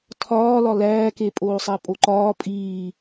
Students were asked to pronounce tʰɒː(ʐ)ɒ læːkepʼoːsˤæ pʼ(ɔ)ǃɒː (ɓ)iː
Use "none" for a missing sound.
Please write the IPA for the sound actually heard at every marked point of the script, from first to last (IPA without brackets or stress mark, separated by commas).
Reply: l, o, pʼ